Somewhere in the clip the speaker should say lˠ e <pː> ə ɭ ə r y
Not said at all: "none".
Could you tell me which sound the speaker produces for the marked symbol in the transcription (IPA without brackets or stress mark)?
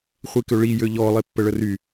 pː